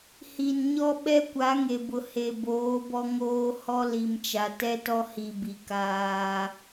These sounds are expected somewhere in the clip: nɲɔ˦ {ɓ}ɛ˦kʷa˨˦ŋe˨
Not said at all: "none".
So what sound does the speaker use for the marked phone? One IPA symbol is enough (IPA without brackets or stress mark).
ɓ